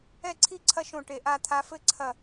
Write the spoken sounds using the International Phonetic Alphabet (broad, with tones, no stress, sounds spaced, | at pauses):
ɛ˥˧ ǀʰ i˥˧ ǀʰ ɐ˦˥ ʃ õ˧˩ ʈ e˧˩ ʔ a˥˧ t̪ʰ a˦˥ f ɘ˦˥ ǀʰ ɐ˧˩